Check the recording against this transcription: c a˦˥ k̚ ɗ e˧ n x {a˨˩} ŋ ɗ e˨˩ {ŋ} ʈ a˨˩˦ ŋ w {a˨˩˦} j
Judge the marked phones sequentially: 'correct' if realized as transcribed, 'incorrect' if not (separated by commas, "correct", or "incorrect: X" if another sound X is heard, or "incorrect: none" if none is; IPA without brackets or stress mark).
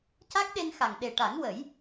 correct, incorrect: none, incorrect: ə˨˩˦